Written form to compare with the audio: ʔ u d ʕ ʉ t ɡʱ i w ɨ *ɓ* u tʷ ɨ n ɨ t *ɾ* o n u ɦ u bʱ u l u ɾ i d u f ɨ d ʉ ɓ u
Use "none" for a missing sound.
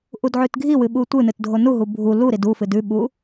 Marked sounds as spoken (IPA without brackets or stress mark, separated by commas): ɓ, dʱ